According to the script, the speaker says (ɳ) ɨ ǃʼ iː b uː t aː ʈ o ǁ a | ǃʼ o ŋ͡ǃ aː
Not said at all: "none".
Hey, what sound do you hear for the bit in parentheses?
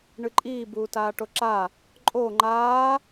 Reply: ɳ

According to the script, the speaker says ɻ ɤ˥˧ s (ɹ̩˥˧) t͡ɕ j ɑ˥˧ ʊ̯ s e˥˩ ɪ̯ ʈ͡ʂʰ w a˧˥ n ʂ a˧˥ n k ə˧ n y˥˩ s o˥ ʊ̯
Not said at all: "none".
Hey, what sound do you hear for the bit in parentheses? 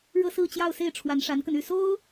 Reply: ɹ̩˥˧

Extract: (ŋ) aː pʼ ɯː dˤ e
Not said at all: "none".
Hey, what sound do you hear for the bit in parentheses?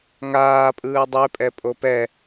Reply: ŋ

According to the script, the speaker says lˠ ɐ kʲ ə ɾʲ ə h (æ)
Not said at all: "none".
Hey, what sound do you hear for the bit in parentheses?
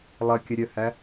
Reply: æ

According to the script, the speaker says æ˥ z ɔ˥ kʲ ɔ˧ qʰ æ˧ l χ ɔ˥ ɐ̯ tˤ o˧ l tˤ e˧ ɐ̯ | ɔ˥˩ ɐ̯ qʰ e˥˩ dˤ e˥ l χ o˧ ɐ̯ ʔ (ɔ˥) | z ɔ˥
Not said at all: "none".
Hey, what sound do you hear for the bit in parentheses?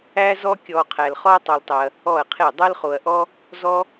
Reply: ɔ˥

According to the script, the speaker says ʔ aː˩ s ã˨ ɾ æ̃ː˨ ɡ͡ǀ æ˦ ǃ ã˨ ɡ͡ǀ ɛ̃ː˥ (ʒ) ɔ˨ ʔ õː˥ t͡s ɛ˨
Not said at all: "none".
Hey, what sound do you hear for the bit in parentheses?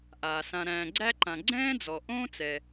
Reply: d͡z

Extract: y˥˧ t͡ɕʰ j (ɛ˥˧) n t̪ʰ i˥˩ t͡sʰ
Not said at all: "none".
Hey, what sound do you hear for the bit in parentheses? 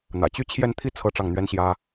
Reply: ɛ˥˧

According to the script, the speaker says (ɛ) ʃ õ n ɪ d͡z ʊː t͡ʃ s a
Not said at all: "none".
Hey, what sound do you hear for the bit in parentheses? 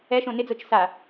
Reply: ɛ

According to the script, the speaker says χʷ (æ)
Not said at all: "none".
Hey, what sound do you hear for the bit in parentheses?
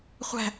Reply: æ̤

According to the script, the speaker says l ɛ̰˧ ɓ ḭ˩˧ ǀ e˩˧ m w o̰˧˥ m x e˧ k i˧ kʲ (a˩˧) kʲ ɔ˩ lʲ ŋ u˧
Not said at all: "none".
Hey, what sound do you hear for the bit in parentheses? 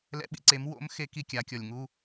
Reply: a˩˧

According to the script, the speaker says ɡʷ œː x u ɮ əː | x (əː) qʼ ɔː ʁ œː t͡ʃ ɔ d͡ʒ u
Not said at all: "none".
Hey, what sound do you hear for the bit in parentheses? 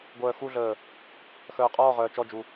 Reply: œː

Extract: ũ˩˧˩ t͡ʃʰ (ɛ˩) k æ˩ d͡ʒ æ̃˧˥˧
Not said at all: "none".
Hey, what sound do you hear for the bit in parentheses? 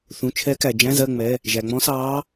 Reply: ɛ˧˥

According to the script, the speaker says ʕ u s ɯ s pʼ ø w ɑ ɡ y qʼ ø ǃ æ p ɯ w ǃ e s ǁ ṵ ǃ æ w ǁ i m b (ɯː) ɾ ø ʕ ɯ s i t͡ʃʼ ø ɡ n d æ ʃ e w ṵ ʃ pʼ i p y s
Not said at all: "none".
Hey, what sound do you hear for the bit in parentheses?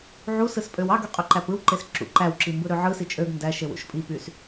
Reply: ɯ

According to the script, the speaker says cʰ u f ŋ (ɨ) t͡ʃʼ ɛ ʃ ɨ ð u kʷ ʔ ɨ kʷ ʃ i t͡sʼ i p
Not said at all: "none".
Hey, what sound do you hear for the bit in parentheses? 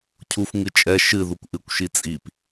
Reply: ɨ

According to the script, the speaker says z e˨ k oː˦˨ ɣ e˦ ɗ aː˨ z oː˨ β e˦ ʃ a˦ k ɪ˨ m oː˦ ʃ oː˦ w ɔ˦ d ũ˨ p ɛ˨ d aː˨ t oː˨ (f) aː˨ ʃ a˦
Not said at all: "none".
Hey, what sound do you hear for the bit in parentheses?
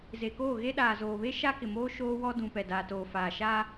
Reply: f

